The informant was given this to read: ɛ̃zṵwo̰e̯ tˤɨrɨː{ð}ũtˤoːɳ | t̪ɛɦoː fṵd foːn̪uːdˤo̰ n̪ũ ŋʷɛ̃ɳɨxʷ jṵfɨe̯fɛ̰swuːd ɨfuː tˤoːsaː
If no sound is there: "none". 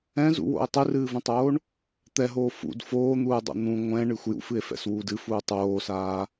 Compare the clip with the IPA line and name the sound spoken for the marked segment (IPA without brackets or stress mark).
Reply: v